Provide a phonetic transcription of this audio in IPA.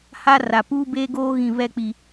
h a˦ r a˨ p uː˦ b eː˦ ɡ oː˦ ɣ ĩ˨ β ɛ˦˨ k͡p i˨

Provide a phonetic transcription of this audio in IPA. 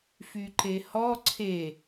f y ǃ e h ɔ ǀʰ e

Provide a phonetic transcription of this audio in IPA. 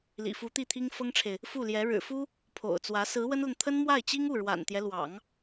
l ḭ˨˩ f u˧˥ t̪ i˥˩ t̪ʰ i˥ ŋ f ɤ˥ ŋ ʈ͡ʂʰ e˨ ɪ̯ | f u˥˩ l j ɛ˧˥ ɻ ɻ̩˨˩ f u˥ | pʰ o̰˨˩ ʊ̯ t͡s w ä˧˥ s ɹ̩˧˥ w ə˥ n l ə˨ n t̪ʰ ə˥ n m w a˥˩ ɪ̯ t͡ɕ i˥ ŋ u˥˩ ɻ w a̰˨˩ n t̪ j ɛ˦ l w ɑ̰˨˩˦ ŋ

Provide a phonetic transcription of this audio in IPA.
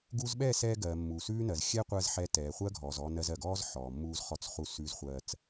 ɡ u˧ z ɓ ɛ˦˨ s ɛː˧ ɡ ɜ˨ mː u˨ s ʉː˦ n ɜ˨ z xʲ ɛ˦ qʷ ɜ˧ z ħ ɛ˧ t ɛː˨ χʷ ɜ˦ ɡʱ ɔː˨ z ɔ˧ n ɜ˧ z ɜ˨ ɡ ɔː˦ z ħ ɔː˨ mː uː˧ z χ ɔ˧ t͡s χ u˧ s ʉː˧ z χʷ ɜː˧ t͡s

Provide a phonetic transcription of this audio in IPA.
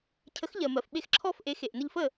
cʰ ə˩˥ x ʎ ɜ˩ m ɜ˩ f ɓ e˧ x ǁʰ ɔ˥˩ f ʔ e˩˥ x e˩ ʔ n ə˧ ʎ f ə˥˩

